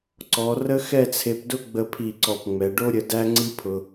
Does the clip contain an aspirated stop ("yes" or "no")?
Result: yes